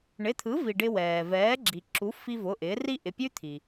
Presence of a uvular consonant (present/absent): absent